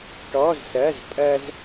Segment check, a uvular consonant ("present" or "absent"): absent